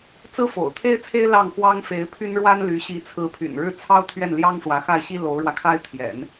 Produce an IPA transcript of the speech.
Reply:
t͡s ɹ̩˥ f o̰˨˩ ʊ̯ t̪ʰ e˥ ɪ̯ t͡sʰ e˥ ɪ̯ l ɑ˥˩ ŋ x w ɑ˥ ŋ f e˧˥ ɪ̯ pʰ y˥ n ɻ w a˥ n l y˧˥ ɕ i˧˥ t͡sʰ ɹ̩˧˥ pʰ y̰˨˩ n ɻ ɻ̩˥˩ t͡sʰ ɑ˥ ʊ̯ t̪ʰ ɥ ɛ˥˩ n l j ɑ˥ ŋ ʂ w ä˧˥ x a˥˩ ɪ̯ ɕ i˥ l o˧˥ ʊ̯ ɻ w ä˧ kʰ a˥ ɪ̯ t̪ʰ j ɛ̰˨˩˦ n

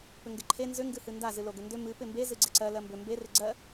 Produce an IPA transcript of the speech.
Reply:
p ʏ ŋ ɡ ɪ ǃʰ e n z ʏ ŋ ɡ ɨ h ɨ n d a z ɨ l o ɡ ʏ n d ʏ m ɨ p ɪ m b e z ɨ ɡ͡ǀ ɪ ǀ ɜ l ɜ m b ʏ m b e r ɪ ɡ͡ǀ ɜ

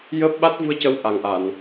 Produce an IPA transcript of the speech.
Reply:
j əː˦˥ p̚ ɓ a˦˥ t̚ v u˧ ə̯ c ə˧˥ w ʔ a˨˩ ŋ ʔ a˨˩˨ n

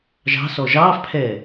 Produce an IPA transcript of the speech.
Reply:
ʒ ɑ̤ s ɔ ʒ ɑː f pʰ ɛː

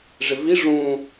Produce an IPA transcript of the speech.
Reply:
ʐ ɪ v i ʐ ũ

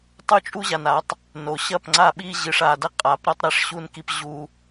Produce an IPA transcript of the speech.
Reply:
tˤ u˦ t͡ʃʼ u˦ ʑ a˨ n a˨˦ tˤ | n o˨ ɕ ɐ˦˨ p ŋ͡ǀ a˦˨ ɓ i˦ ʑ ɨ˨ ʂ a˨ d ɐ˦ qʼ a˨˦ p ɾ ɐ˦ tˤ ɾ ɛ˦ ʂ ɕ u˦ n k i˦ p ʑ u˦

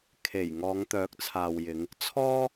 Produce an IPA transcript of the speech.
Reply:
kʰ e˨˩ j ŋ ɔː˨˧ ŋ t̪ œː˨˥ k̚ t͡sʰ aː˨ w j ɪ˨˧ ŋ | t͡sʰ ɔː˥

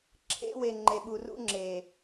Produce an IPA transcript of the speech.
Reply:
ǁʰ ḛ˦ w e˨ ŋ͡ǃ e˨ ɓ u˨ r ṵ˦ ŋ͡ǁ e˨

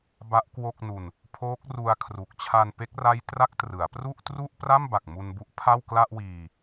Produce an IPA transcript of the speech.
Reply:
b a˦˥ ʔ k w o˥˩ k̚ n u˧ n | pʰ oː˦˥ k̚ r u˧ a̯ kʰ r u˨˩ k̚ t͡ɕʰ a˧ n p e˦˥ k̚ r a˦˥ j t r a˦˥ k̚ t r ɯ˩˦ a̯ p r u˥˩ ʔ t r u˥˩ ʔ p r a˥˩ m b a˨˩ k̚ m u˧ n b u˦˥ ʔ pʰ a˥˩ w k l a˥˩ ʔ w iː˧

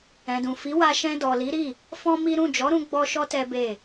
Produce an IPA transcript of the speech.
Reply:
ɛ̃˨ d ũ˨ f i˨˦ w a˧ ʃ ɛ̃˧ d ɔ˨ l i˨˦ ɾ i˦˨ | f ɔ̃˦ m i˦ ɾ ũ˦˨ d͡ʒ ɔ˨˦ ɾ ũ˧ ɡ͡b ɔ˦ ʃ ɔ˦ t ɛ˦ b e˦˨

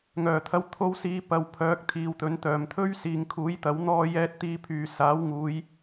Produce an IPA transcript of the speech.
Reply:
ŋ œː˨˩ t̪ʰ ɐ˧ w t̪ʰ o˧ w s iː˨˧ p ɐ˨ w pʰ œː˨˥ k̚ t̪ʰ iː˨ w t̪ ɵ˨˥ n t̪ œː˨˩ m t̪ʰ ɵ˥ ɥ s iː˨ ŋ kʰ uː˨˥ j t̪ ɐ˨˥ w n̪ ɔː˧ j ɛː˧ t̚ t̪ iː˧ pʰ yː˨ s aː˨˥ w ŋ uː˨˧ j

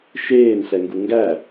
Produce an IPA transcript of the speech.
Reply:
ʃ eː n ɬ ɛ ŋ ɡ u ŋ ɡ æ

